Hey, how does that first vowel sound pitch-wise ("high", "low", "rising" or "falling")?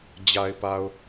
low